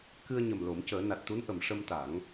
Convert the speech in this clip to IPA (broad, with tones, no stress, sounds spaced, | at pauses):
k ɨ˧ ə̯ ɲ ə˨˩ m l o˨˩˦ m c əː˨˩˦ n a˨˩ t̚ t̪ u˧˥ n ʔ ə˨˩˨ m ʂ ə˧ m t̪ a˨˩˦ ŋ